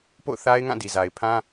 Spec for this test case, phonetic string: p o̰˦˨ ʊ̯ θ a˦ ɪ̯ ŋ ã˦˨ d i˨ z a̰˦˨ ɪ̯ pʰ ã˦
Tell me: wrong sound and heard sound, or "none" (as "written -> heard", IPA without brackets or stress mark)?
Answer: a̰˦˨ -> a˨